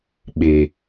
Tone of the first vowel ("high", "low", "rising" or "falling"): low